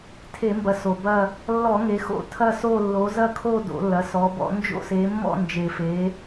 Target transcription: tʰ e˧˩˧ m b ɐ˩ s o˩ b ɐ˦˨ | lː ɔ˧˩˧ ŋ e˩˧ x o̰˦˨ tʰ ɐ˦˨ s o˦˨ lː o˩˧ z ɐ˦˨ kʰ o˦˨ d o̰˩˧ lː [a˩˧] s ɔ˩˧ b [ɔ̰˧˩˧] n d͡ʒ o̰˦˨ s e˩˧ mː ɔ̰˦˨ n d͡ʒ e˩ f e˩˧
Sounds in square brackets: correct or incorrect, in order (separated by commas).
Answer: incorrect, correct